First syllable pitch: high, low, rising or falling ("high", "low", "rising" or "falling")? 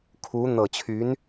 rising